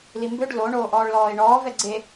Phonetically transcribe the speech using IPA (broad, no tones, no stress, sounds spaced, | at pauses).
l i m b ø ɖ l o ɳ oː ʔ ɔː ɭ l ɔː ɪ̯ ɳ ɔː v ɛ ɡ͡ǀ e